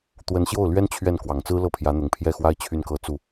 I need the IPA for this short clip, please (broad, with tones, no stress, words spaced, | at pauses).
t̪wə˧˥nɕjo˥˩ʊ̯ lɥɛ˥n t͡ɕʰɥɛ˥˩n kwɑ˨˩ŋt͡sɹ̩˥lɤ˥˩ pʰjä˧˥n̪ʊ˨˩ŋpʰjɛ˥˩xwa˥ɪ̯ t͡ɕʰy˥˧nkɤ˥˧t͡su˥˩